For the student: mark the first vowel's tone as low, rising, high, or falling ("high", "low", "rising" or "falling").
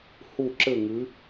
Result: falling